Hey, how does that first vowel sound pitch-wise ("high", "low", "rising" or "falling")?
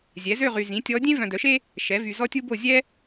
rising